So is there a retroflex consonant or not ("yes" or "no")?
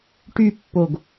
yes